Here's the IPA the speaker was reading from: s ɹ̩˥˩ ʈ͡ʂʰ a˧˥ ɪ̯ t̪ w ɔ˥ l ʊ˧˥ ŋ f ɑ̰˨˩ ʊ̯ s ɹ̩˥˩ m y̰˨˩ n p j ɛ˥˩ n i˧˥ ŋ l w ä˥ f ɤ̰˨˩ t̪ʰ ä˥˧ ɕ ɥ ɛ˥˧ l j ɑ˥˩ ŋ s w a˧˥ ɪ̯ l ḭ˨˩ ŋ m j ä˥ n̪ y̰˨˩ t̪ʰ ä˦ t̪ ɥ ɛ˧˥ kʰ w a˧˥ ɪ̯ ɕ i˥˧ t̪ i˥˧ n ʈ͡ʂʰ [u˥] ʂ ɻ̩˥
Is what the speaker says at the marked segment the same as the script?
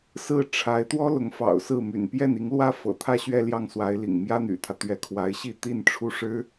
no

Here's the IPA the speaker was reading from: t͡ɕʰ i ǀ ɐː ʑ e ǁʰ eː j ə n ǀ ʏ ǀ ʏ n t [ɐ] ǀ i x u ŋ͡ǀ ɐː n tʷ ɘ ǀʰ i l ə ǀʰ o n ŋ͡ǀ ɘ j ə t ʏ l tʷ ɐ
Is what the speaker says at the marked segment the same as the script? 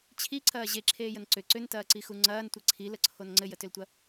no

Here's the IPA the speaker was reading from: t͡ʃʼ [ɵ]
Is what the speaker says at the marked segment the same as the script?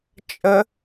no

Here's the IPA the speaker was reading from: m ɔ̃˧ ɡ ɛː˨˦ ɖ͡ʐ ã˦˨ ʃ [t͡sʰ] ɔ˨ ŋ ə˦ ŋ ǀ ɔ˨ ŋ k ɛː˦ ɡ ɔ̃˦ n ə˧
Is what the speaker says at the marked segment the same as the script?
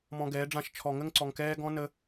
no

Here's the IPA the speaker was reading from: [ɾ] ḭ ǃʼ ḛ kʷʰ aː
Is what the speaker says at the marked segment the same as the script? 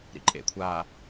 yes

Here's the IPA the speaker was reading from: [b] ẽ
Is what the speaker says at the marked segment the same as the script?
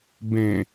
yes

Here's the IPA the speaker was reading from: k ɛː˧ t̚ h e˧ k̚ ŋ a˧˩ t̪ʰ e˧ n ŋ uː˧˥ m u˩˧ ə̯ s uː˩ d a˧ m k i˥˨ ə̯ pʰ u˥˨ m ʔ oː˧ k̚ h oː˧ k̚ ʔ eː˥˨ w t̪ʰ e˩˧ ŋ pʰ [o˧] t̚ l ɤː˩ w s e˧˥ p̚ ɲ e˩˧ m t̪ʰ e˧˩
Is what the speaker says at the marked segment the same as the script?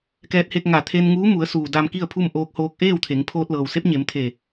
no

